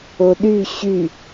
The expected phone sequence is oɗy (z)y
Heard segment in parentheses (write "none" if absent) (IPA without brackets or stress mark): ɕ